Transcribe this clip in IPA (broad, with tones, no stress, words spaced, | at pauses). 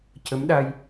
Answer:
cə˧˥mɗa˧j